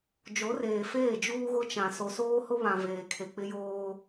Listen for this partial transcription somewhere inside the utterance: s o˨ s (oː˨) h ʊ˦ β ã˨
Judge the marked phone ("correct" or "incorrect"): incorrect